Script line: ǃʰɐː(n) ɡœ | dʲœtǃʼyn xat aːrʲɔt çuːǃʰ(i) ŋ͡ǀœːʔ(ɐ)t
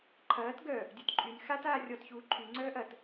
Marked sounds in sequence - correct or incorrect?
incorrect: t, incorrect: y, correct

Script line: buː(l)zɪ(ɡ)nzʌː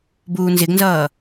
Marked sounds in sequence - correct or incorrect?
incorrect: n, correct

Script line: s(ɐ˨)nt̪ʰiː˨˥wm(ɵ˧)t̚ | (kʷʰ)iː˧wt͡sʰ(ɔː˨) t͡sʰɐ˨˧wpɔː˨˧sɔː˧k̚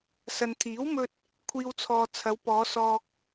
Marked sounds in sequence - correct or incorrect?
correct, correct, correct, correct

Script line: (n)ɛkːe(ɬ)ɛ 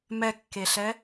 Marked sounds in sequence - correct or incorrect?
incorrect: m, correct

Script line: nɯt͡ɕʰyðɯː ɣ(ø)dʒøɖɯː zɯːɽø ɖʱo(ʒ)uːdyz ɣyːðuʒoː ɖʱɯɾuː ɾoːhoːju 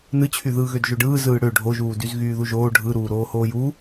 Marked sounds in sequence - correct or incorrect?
correct, correct

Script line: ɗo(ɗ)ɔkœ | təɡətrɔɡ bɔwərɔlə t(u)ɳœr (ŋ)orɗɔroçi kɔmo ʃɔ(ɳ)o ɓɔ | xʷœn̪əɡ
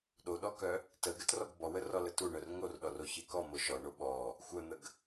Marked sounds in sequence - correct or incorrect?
correct, correct, correct, correct

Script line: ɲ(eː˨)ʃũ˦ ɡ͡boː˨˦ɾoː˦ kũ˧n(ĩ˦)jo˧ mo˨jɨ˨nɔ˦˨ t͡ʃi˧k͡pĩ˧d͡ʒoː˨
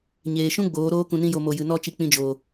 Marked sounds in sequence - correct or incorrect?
correct, correct

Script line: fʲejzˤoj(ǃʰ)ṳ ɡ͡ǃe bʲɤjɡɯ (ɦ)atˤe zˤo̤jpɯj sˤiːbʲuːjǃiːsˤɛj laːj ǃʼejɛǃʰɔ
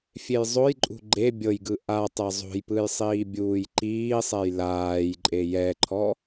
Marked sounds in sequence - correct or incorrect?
incorrect: ǃʼ, incorrect: ʔ

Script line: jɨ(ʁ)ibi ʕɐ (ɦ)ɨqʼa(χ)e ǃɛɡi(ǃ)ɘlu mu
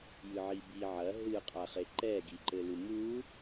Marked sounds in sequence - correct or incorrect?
incorrect: ʕ, correct, correct, correct

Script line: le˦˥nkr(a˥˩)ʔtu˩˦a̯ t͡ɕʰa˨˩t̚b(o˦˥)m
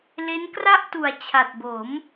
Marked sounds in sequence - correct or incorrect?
correct, incorrect: o˩˦

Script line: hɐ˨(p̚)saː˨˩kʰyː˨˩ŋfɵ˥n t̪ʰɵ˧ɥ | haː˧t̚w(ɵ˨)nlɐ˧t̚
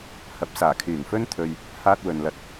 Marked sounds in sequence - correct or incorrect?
correct, correct

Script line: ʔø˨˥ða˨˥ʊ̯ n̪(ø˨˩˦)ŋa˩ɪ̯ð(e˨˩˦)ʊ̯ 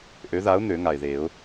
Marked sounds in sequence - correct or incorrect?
correct, correct

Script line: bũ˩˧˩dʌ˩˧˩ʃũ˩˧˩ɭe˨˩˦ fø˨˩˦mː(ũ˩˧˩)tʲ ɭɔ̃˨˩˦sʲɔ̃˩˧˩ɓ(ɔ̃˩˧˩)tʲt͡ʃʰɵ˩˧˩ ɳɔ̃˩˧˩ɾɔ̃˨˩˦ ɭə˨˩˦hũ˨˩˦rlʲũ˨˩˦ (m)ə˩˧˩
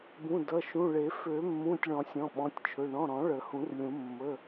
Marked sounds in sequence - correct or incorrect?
correct, correct, incorrect: mː

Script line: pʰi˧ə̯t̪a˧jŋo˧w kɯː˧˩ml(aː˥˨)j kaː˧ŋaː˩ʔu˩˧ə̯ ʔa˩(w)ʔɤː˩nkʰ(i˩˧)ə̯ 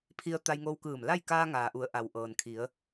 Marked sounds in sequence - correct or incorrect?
incorrect: a˥˨, correct, correct

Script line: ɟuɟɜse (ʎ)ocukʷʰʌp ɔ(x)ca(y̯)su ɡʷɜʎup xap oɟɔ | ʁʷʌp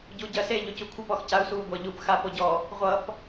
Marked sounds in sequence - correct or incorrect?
correct, correct, incorrect: u̯

